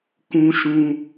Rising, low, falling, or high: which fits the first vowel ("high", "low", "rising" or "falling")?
high